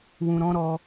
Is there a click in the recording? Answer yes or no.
no